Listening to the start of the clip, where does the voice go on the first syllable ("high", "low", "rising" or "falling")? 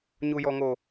low